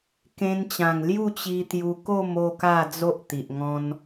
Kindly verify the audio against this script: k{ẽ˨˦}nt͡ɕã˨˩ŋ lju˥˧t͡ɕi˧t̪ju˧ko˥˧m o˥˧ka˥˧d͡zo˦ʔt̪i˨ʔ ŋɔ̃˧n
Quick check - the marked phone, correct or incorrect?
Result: incorrect